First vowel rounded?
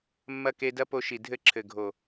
no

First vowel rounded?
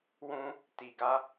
yes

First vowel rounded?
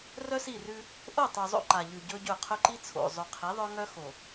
yes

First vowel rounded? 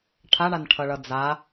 no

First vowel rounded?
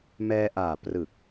no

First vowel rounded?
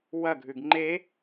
no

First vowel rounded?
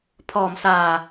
yes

